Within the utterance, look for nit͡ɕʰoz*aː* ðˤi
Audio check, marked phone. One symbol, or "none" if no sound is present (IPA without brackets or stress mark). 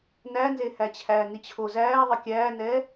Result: æː